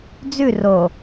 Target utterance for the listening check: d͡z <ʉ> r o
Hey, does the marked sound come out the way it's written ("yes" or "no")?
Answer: yes